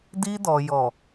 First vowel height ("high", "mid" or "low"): high